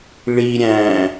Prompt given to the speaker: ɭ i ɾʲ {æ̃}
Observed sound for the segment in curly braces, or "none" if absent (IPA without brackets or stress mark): æ̃